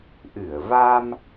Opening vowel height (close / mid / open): close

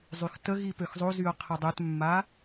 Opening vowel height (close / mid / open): close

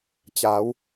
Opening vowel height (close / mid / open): open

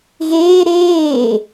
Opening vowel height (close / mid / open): mid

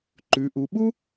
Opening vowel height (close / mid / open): close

